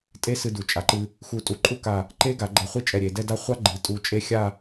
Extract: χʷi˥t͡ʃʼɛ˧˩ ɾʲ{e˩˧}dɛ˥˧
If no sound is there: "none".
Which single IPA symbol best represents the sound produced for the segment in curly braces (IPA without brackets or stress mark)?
e˩˧